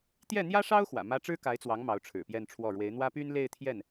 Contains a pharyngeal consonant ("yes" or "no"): no